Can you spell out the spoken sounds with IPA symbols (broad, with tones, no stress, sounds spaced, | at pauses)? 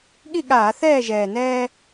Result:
ɠ i˥˨ ɠ aː˧˩˧ θ ɛː˥˨ ʒ ɛː˨˩ n ɛː˦